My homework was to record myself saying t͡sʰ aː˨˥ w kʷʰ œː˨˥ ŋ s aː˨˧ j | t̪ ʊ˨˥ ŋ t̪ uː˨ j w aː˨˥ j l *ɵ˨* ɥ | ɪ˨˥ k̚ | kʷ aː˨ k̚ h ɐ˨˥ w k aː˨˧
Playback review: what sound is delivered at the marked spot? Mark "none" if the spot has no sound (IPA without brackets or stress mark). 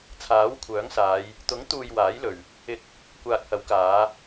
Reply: ɵ˨